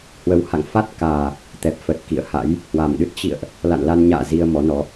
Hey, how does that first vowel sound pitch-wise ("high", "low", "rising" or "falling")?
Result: rising